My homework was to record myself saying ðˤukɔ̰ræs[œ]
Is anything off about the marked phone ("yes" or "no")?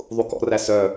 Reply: no